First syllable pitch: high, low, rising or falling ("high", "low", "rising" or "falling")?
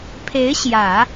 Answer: rising